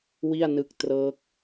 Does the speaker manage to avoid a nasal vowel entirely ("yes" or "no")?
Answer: yes